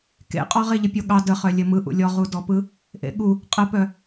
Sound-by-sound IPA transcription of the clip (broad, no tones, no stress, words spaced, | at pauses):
kḛqʼɔʁe ʎəpʲoɠɑ dəχœlʲɘ mɯʔṵ lʲɔʁudɔpɯ | ʔḛɠu | qʼəpœ